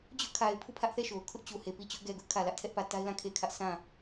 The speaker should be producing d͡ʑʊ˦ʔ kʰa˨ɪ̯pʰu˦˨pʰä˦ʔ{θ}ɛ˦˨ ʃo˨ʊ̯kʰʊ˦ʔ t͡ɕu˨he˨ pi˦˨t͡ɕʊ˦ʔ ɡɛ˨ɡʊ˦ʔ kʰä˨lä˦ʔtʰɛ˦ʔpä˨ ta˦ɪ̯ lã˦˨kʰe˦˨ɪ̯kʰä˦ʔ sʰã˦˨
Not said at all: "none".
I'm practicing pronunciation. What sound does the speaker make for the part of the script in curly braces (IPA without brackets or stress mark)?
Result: θ